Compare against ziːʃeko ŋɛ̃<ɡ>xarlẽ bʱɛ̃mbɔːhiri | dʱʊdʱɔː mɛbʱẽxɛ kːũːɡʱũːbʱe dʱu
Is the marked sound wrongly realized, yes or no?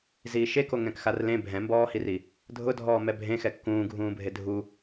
yes